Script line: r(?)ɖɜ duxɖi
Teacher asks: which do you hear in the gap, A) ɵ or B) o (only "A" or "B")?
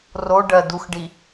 B